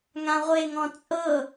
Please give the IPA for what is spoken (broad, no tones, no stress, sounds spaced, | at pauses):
ŋ ã ʁʷ e ŋ ɔ̃ t͡sʼ ɤ